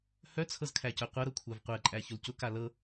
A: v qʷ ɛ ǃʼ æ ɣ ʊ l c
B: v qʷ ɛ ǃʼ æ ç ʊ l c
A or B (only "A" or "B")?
B